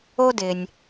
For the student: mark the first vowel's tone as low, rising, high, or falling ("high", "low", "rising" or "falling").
high